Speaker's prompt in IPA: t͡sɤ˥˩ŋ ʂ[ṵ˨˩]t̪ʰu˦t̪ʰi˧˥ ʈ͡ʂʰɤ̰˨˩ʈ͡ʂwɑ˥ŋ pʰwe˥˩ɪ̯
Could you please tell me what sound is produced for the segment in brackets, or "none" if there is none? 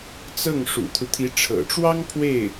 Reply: ṵ˨˩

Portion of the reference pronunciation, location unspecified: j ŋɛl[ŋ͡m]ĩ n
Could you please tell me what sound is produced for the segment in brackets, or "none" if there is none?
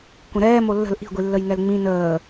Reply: ŋ͡m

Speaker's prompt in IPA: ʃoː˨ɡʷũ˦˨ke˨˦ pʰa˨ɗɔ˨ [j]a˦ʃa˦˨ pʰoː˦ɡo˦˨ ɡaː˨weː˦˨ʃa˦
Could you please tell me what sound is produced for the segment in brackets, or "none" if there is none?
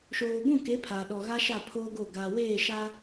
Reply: ɣ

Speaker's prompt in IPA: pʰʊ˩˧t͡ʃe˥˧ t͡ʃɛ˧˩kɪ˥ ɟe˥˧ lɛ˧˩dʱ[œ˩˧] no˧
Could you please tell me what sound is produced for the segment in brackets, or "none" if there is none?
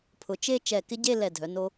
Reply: œ˩˧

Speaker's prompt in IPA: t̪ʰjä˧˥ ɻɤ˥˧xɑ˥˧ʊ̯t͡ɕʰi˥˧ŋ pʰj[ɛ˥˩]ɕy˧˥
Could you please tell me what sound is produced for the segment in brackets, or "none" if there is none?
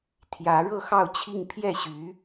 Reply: ɛ˥˩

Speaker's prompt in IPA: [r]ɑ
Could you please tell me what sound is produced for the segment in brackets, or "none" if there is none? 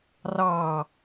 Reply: r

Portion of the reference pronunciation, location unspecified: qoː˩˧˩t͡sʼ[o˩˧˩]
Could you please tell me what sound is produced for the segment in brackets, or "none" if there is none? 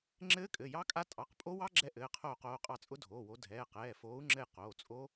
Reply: o˦˥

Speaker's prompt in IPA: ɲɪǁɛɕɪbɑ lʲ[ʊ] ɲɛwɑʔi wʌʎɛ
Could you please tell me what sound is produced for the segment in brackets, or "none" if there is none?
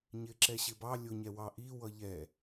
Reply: ʊ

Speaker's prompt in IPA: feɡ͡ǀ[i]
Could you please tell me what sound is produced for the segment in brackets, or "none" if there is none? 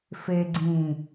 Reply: ĩ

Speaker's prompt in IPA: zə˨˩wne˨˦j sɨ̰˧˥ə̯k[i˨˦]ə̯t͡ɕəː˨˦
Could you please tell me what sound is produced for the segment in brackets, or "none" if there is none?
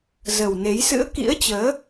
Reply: ḭ˧˥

